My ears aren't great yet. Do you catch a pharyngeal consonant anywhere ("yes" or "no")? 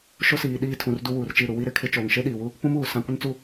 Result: no